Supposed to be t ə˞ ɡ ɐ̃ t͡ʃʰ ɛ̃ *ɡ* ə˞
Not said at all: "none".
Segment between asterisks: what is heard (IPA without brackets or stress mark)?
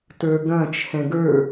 ɡ